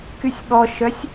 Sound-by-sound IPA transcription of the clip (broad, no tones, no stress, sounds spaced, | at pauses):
k y sʲ ɓ ɔ ʃ œ sʲ